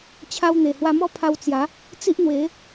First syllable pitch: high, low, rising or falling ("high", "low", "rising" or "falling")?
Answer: high